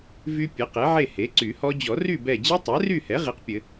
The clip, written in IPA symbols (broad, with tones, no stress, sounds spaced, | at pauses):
v y˦˥ pʲ ɘ˩˥ q e˩˥ ʕ e˥˨ h e˩˥ ǀ y˨˩˦ h ɔ˦˥ d͡ʑ ɔ˨˩˦ r y˥˨ b ɛ˧˩ d͡ʑ i˦˥ tˤ ɛ˩˥ r y˥˨ h ɛ˩˥ ʁ i˩˥ q pʲ ɘ˨˩˦